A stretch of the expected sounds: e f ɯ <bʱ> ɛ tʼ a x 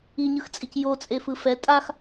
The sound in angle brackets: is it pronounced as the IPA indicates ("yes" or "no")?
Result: no